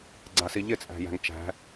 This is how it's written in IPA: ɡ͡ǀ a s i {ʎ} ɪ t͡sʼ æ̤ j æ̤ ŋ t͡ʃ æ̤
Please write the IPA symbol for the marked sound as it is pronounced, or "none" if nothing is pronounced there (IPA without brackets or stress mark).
ʎ